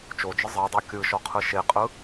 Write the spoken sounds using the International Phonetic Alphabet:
t͡ʃ o d͡ʒ ɯ zˤ ɜ dˤ o kʲ ɯ ʃ ɔ qʰ ɯ ʃ e qʼ ɯ

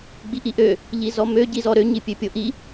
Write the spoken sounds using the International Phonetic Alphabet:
ɡ͡b i ʔ i ʔ ø | ʎ i z ɔ m ø ɟ i z ɔ ɾ ø ɲ i pʲ ø pʲ o ʔ i

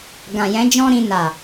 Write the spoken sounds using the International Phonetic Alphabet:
ɡ ã˨ j ɛ̃˨˦ d͡ʒ ɔ̃˦ ɾ ĩ˧ n a˨

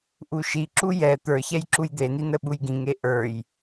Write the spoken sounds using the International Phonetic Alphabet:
ʔ u ʃ i ǁ u j ɛ t̪ ə˞ ç ɛ j ǁ u j d̪ e n i n ə ɓ u j ɡ ĩ ŋ e ʔ ə˞ j

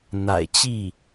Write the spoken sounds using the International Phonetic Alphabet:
n̪ a̰˨˩ ɪ̯ t͡ɕ i˥˩

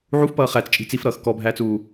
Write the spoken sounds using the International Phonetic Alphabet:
ʕ u f p ʌː χ æ t͡s t͡ʃʼ i̤ t͡s i f ɾ ʌː x k ɔ bʱ æː t͡s uː

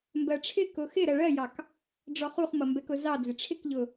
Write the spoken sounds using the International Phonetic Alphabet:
m b ɜ ʈ͡ʂʰ ɪ k ʊ x ɪ ɾ ɜ ɭ ɜ j ɑ k | ɖ͡ʐ ɔ χ u χ m ʌ m b ɛ k ʊ z ɑ d͡z ɪ ʈ͡ʂʰ ɪ k ʎ ʊ

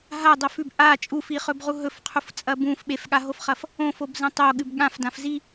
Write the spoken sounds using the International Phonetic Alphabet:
ɦ a dˤ o f ʉ b ʔ a t͡ʃʼ u f i χ ɵ b ʁ u ɦ ɵ f qʰ u f t͡sʼ ɐ b ũ f ɓ e f ɠ a ɦ o f χ ɐ f | õ f o b z ɐ̃ tˤ o ɠ ɨ b ɠ ã f d ã f z i

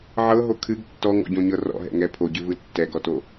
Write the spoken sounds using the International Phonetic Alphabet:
ʕ ɤ ɦ o kʰ ɨ ɡ tː ɔ ŋ ɔ̰ ɟ õ ɲ ɤ r ɔ̰ ɦ ɛ̰ ŋ ɛ pʰ o ɟ ɨ v ɯ tː ɛ ɡ ɔ t o

